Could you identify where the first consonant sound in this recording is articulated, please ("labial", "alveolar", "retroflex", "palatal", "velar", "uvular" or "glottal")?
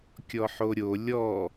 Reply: velar